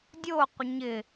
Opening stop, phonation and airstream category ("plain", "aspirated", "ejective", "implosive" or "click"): plain